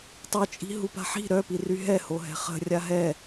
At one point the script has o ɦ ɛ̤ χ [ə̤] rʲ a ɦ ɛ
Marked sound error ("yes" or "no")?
no